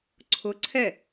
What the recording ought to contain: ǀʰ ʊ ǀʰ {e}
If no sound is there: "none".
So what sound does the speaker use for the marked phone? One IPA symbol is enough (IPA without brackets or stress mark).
ɛ